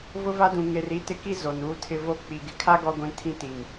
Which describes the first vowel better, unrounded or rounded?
rounded